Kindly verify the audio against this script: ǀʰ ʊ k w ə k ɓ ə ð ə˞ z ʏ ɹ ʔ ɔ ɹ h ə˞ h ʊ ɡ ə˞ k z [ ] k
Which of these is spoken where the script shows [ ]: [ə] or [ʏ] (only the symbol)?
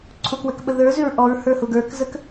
ə